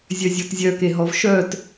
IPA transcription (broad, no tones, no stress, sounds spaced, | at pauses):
zʲ œ zʲ ɔ t zʲ œ k e ɦ ɔ v ʃ œ t